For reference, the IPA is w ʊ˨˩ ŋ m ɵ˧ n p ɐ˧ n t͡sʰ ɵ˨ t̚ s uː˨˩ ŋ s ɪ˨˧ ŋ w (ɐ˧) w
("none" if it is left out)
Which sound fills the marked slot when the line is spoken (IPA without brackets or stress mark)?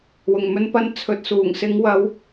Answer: ɐ˨˧